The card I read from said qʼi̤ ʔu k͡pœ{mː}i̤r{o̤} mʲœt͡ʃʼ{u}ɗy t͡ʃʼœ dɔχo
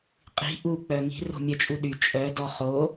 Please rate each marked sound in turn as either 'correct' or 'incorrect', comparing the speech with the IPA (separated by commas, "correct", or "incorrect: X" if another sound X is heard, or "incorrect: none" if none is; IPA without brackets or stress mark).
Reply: incorrect: ŋ, correct, correct